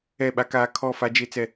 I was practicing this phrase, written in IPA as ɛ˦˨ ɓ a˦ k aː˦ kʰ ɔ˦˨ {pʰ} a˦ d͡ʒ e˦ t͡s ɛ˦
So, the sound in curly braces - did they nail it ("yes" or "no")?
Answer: no